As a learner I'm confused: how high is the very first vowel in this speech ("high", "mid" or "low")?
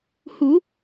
high